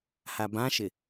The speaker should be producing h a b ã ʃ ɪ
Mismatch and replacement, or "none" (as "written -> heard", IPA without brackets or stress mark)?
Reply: none